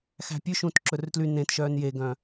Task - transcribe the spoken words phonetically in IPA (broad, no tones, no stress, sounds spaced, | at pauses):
x æ̤ pʲ ʉ ʃ ũː t ǁ ɵ r t l y n ẽ t ʃ œː n j e ɡ œ̃